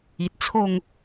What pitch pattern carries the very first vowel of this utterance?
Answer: low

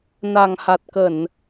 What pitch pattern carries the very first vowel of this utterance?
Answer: low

